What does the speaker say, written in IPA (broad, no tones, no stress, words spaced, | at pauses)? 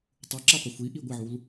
tˤuǁaqʷɪ xʷiʔi ɡʷɪʕul